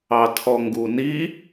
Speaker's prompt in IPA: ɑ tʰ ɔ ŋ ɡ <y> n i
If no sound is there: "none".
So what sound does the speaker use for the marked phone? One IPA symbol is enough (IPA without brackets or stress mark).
u